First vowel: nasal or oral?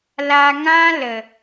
oral